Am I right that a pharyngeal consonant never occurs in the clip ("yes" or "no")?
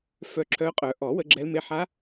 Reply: no